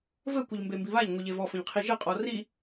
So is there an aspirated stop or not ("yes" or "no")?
yes